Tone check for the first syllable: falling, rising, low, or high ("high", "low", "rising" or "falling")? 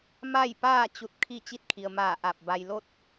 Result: falling